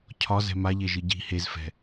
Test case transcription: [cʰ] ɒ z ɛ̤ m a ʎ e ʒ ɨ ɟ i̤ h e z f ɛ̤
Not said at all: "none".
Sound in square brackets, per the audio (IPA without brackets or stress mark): cʰ